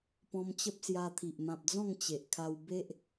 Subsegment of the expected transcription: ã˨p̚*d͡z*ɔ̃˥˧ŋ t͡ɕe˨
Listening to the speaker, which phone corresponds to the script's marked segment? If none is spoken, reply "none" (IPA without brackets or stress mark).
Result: d͡z